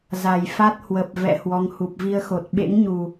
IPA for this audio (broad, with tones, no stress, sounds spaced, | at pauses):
z a˨˩ j f a˦˥ t̚ h w ə˨˩ p̚ v ɛ̰˧˨ h w ɔ˨˦ ŋ h u˨˩ p̚ v i˧ ə̯ x o˨˩ t̚ ɓ ḛ˧˥ ŋ ɲ u˨˩